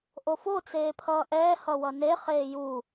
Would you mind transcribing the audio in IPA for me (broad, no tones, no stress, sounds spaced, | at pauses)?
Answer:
ʔ o f o t͡s eː pʰ ʌː ʔ ɛː h ʌ w ʌ n e χ eː j u